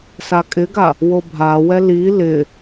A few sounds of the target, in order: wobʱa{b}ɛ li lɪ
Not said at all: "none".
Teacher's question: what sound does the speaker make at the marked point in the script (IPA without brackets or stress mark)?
w